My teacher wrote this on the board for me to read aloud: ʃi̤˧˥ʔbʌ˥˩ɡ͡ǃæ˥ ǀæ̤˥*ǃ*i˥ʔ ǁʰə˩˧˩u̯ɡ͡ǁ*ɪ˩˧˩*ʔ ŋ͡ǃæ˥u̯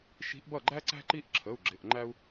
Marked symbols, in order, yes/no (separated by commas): yes, yes